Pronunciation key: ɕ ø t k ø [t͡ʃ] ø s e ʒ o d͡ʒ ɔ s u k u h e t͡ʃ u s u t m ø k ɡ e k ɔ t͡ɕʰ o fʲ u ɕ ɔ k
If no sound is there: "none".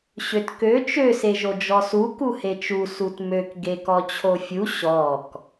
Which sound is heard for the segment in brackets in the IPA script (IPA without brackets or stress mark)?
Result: t͡ʃ